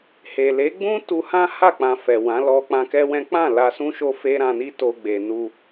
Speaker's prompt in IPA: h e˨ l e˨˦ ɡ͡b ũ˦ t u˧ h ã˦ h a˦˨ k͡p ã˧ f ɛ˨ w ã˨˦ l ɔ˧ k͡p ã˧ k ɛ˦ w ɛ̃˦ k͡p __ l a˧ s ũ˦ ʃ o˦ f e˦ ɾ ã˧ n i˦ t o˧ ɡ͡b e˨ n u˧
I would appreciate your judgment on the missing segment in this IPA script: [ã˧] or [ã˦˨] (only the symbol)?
ã˦˨